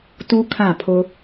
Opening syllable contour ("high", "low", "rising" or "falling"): high